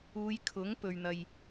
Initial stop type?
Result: aspirated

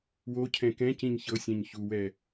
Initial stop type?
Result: aspirated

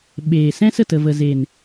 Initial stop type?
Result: implosive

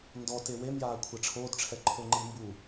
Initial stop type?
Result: plain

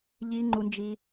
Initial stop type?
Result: click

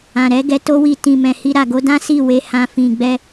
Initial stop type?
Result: plain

